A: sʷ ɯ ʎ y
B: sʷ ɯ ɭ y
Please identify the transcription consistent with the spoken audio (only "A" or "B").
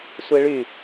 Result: B